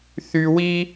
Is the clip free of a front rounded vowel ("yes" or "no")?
no